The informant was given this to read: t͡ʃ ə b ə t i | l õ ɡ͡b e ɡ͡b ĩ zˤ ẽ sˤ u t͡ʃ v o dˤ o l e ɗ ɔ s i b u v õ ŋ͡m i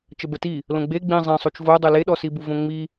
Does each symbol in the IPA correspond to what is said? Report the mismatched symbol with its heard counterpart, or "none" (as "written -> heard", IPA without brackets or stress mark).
none